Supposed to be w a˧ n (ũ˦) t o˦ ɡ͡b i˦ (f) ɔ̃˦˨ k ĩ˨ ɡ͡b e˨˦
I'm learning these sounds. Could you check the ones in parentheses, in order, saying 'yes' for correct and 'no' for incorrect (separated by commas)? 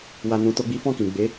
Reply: no, yes